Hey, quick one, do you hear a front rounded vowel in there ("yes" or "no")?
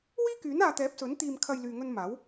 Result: yes